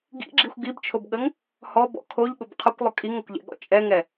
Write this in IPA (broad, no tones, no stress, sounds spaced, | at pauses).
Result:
ɡ ḭ ɡ͡ǁ i xʷ ɡ i b t͡ʃʰ o b ɠ ə ŋ | h ɔ b ɔ̰ kʰ o ʎ ɠ ʊ b qʰ ʊ kʷ lˠ ʊ kʼ i ŋ ə kʷ ʎ ɛ̰ ɠ ɔ̰ t͡ʃʼ ɛ ŋ ɛ